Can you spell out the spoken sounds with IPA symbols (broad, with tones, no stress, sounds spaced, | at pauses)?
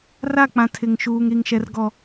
r a˦˨ k͡p ã˨ tʰ ɪ˨ ŋ ʃ uː˨ ŋ ɾ i˨ ŋ ʃ ɛ˨ r ɡ ɔ˨